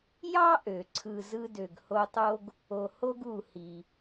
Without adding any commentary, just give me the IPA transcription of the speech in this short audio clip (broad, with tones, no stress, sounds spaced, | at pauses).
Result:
j ɑ˥ ʔ ø˩ ǀʰ ɯ˨ z ɯ˦ d ø˨ ɡ h o˦ tˤ o˥ ɡ | o˨ h o˥ ɡ u˨ h i˩